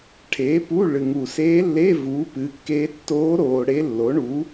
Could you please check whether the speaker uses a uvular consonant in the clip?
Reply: no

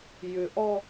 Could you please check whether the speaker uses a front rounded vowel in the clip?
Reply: yes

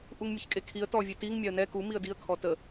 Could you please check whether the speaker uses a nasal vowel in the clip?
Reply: no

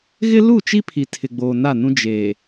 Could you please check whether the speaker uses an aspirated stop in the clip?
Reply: yes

